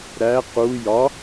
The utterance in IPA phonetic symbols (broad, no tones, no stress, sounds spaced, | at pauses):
ɾ æ q u j ɒ